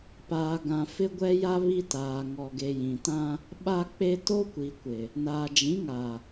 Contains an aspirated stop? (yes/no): no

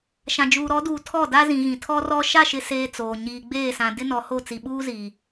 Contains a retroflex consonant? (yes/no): no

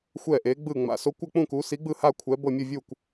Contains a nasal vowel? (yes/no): yes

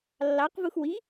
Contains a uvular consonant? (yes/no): yes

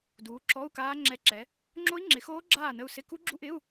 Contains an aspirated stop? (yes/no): no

